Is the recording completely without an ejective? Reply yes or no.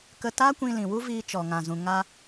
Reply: yes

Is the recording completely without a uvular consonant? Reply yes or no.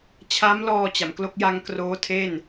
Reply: yes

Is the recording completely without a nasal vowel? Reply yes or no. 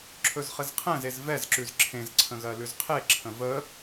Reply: no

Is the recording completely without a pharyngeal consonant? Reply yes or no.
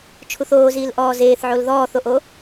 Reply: no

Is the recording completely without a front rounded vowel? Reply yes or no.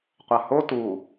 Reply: yes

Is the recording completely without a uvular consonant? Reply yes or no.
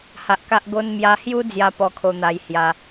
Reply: yes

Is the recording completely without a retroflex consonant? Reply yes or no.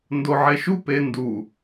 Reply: yes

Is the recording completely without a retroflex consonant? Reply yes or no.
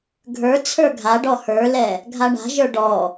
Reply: no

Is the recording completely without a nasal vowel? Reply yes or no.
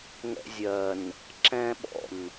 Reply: no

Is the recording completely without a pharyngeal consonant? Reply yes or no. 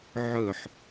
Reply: no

